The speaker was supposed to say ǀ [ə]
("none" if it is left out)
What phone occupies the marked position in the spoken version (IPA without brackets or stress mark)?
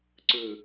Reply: ɯ